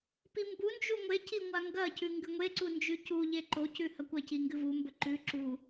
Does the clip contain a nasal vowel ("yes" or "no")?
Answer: no